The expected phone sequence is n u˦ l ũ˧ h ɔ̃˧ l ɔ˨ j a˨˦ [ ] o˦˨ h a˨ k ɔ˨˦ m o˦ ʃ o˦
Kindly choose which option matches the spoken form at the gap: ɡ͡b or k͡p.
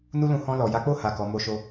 k͡p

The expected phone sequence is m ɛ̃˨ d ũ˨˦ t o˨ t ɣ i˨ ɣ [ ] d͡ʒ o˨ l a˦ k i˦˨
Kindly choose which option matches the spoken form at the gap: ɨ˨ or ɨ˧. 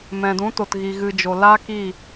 ɨ˨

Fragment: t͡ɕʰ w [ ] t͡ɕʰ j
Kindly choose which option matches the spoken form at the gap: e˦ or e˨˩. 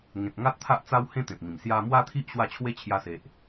e˦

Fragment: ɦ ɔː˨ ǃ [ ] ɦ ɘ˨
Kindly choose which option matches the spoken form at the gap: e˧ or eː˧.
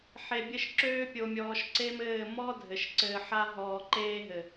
eː˧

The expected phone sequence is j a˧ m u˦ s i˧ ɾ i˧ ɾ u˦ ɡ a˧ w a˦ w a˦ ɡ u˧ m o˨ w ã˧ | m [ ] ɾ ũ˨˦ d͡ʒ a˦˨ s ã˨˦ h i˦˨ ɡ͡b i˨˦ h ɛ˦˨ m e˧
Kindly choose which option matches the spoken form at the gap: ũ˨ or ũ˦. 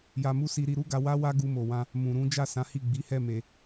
ũ˨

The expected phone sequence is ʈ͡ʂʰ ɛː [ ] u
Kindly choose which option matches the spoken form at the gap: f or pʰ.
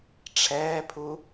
pʰ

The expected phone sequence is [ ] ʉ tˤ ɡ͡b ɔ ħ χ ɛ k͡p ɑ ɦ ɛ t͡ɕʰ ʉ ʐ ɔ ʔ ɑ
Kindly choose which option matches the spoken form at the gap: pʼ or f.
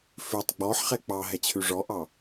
f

